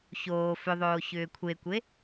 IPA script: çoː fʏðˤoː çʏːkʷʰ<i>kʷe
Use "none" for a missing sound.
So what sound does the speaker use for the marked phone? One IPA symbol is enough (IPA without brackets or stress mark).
e